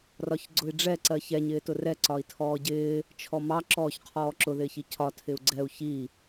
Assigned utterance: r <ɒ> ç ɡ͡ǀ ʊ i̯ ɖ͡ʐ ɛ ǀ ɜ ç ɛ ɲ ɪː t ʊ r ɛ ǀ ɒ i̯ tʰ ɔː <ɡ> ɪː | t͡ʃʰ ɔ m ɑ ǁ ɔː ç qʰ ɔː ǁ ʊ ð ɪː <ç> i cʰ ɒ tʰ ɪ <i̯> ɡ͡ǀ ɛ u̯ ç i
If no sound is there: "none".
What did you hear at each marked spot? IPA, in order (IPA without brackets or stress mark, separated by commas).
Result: ɒ, ɟ, ç, u̯